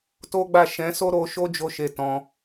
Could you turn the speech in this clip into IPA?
t o˦ ɡ͡b a˦˨ ʃ ɛ̃˨˦ s o˦ ɾ o˧ ʃ o˦ d͡ʒ o˦˨ ʃ e˧ t ɔ̃˧

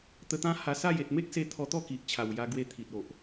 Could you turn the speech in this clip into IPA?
t̪ ə˧ t̪ ã˦ h a˧ s a˥˧ j e˨ t̚ m e˦ k̚ s e˧ t̪ʰ ɔ˧ t̪ ɔ˥˧ k i˨ ʔ t͡ɕʰ a˨˩ w j a˧ ɡ w e˧ t̪ʰ i˨ t̚ o˨ ʔ

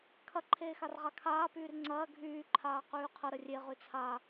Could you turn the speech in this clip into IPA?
kʰ ɐ ǃʰ eː x a r ʁ a kʰ aː p yː r ŋ͡ǀ ɐː ɡʱ yː ǃʰ aː q yː qʰ ə ɾ ə rʲ e ʁ y t͡sʰ a

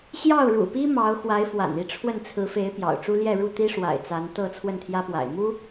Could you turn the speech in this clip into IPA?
ɕ j ɑ˥˩ ʊ̯ ɻ ṵ˨˩ p i˥ m ɑ˧˥ ʊ̯ x w a˧˥ ɪ̯ f w a̰˨˩ n i˥˧ ʈ͡ʂʰ w ə˥˩ n t͡sʰ ɹ̩˧˥ f e˧˥ ɪ̯ p j ɑ̰˨˩ ʊ̯ ʈ͡ʂ u˥ l j ɛ˥˧ ɻ u˥˩ t̪ i˥ ʂ w a̰˨˩ ɪ̯ t͡s a˧˥ n t̪ ɤ˥˧ t͡sʰ w ə˥˩ n t̪ʰ j ä˥ p w a̰˨˩ ɪ̯ m u˥

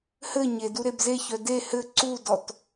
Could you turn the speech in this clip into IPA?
h ɘ ɲ e d u ɾ e b z e ç œ d e h ɘ ǀ u d ɔ t

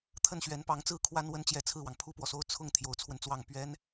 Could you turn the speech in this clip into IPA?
t̪ʰ ə˥˩ n ɕ ɥ ɛ˧˥ n p ɑ˧˥ ŋ t͡s ɹ̩˥ kʰ w a˥ n w ə˥ n t͡ɕ j ɛ˧˥ t͡sʰ ɹ̩˥˩ w ɑ˩ ŋ pʰ u˥˩ p w ɔ˩ s o˥˧ ʊ̯ t͡sʰ ʊ˥˩ ŋ t̪ʰ j o˧˥ ʊ̯ t͡sʰ w ə˧ n t͡s w ɑ˥˩ ŋ p ɥ ɛ˥ n

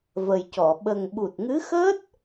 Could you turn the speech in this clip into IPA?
v ə˨˩ j c ɔ˨˩˨ ɓ ə˨˩ ŋ ɓ u˨˩ t̚ ŋ ɨ˧˥ x əː˦˥ t̚

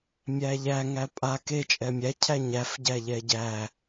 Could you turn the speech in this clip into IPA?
mʲ æ ʎ æ ŋ æ pʼ a k e t͡ʃʼ ɛ mʲ æ cʰ æ ɲ æ f ɟ æ ʎ ɛ ɟ æ

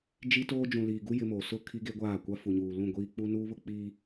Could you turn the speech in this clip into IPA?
d͡ʒ i˦ t oː˦ d͡ʒ ũ˨ l iː˨ ɡ u˦ j ɪ˦ m oː˨ s ʊ˦˨ kʰ i˦ ɡ e˦ ɡʷ aː˦˨ kʷ a˦ f u˨ ɲ uː˨ l ũ˦˨ ɡʷ iː˦ k͡p u˦ n uː˦ β ʊ˦ k͡p iː˦

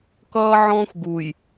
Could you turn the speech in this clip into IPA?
k ʌː˦ ʕ ɔ̃ː˦ xʷ ɡ u˨ j

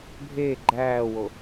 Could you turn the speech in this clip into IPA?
bʱ eː ɡ͡ǃ æː w o

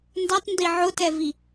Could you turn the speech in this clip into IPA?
n d a tˤ n d i ʕ ʊ t ɛ v i

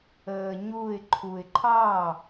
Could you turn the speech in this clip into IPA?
əː ɲ u ɪ̯ ǃʰ u ɪ̯ ǃʰ ɑː

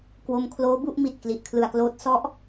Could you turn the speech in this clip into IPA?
k w o˧ m kʰ l oː˦˥ b u˥˩ ʔ m i˨˩ t̚ k l i˨˩ ʔ kʰ l ɯ˨˩ a̯ k l oː˦˥ t̚ s ɔ˥˩ ʔ

